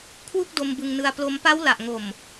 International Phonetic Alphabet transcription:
kʰ w u˥˩ k̚ d o˧ m b ɯ˧ ŋ n ɯ˧ a̯ p l o˦˥ m p a˦˥ w l a˨˩ ʔ ŋ o˨˩ m

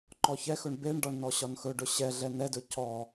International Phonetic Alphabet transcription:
ǃ ɔ ç ɛ x ɵ ɳ b e ɳ ɖ ɒ ɳ n ɔ ɕ ɒ n x ɵ ɖ ɵ ɕ ɛ ɮ ɛ n ɛ d ɵ c ɔ

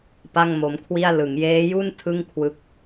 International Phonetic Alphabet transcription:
p a˥˩ ŋ m o˦˥ m kʰ w i˥˩ a̯ l ɯ˩˦ ŋ j eː˦˥ j u˥˩ n tʰ ɯ˥˩ ŋ kʰ w ɯ˦˥ k̚

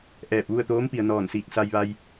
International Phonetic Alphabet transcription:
ʔ ɛː˧˩ p̚ ʋ u˥˨ ə̯ t̪ oː˧˥ m p i˩ ə̯ n ɔː˧˩ n s iː˧˩ k̚ s a˧ j ʋ a˧ j

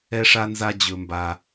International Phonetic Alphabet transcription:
ɛ˦ ʂ a˦ n z a˦ d͡ʑ ɵ˦ m b a˦

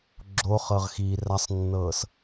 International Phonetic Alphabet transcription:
ɡ͡ǁ o χ ɤ ʁ x iː r a sˤ nː ɤː s

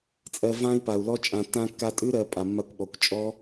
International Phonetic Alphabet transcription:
t͡sʼ ɜ˧ v ã˦ i̯ p a˨ u̯ l ɔ˦ t͡ʃʼ ã˨ tː ã˧ kː a˧ tʼ ʉ˦ ɾ ɜ˧ pʼ a˨ mː a˧ kʷ ɓ ɔ˨ kʷ t͡ʃʼ ɔ˦

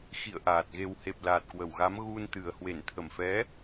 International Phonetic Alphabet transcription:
x ḭ˧˨ ə̯ ʔ aː˨˩ t̚ ɣ e˨˩ w h e˨˩ p̚ l aː˨˩ t̚ k w ə˧˩ w ɣ a˨˦ m ɣ u˧ n t̪ ɨ˨˩ ə̯ h w e˧˩ n t̪ʰ ə˧˩ m f ɛ˨˦

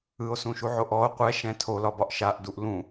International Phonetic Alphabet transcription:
ɯ o̯ s ũ ʃ u ʕ o ʔ ɔ o̯ qʷ ɛ ʃ ɛ̃ tʰ o l ɒ b ɒ ʔ ʃ a ʔ d u ʔ l ũ

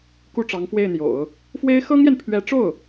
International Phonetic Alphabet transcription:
k u˥˩ ʈ͡ʂ ɑ˧˥ ŋ f w e˥˩ ɪ̯ n̪ j o̰˨˩˦ ʊ̯ | f w e˥ ɪ̯ x ɤ˥ ŋ j ɛ˨ n pʰ ɥ ɛ˧˥ ʈ͡ʂ o˥˩ ʊ̯

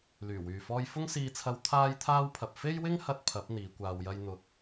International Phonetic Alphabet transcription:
l yː˨˩ w yː˨ f ɔː˥ j f ʊ˥ ŋ s iː˧ t͡sʰ ɐ˧ w t̪ʰ aː˥ j t̪ʰ aː˥ w pʰ ɐ˨ p̚ f e˥ j w ɪ˥ ŋ h ɐ˥ t̚ pʰ ɐ˨˥ p̚ n̪ iː˨˧ kʷ aː˧ w j ɐ˥ j n̪ ʊ˧ k̚

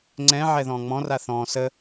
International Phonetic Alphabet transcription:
ŋ͡ǀ ɛ̃ ʕ ɛ ð ɔ̃ː ŋ͡m ɔ̃ r a θ ɔ̃ː s ə

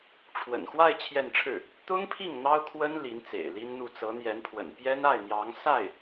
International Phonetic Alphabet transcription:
ʈ͡ʂʰ w ə̰˨˩ n x w a˥˧ ɪ̯ t͡ɕʰ j ɛ˥˧ n ʈ͡ʂʰ ɻ̩˥˩ | t̪ ʊ˥ ŋ pʰ i˥˩ ŋ n̪ ɑ˥ ʊ̯ kʰ w ə˥ n l i˧˥ n t͡s ḛ˨˩ ɪ̯ l i˥ n n̪ u˥˩ t͡s ɤ˧˥ n̪ j ɛ˧˥ n pʰ w ə̰˨˩ n p j ɛ˥ n a˥˩ ɪ̯ n̪ j ɑ˧˥ ŋ s a˥˩ ɪ̯

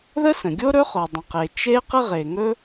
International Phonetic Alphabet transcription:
ð ə˥ s ə̃˩ ɡʲ o˥ ɾ ɵ˥ χ o˩ dˤ ə̃˩ q e˩ t͡ʃ e˥ q ə˥ ʁ e˩ ŋ ɵ˥

